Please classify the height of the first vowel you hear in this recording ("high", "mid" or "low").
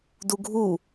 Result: high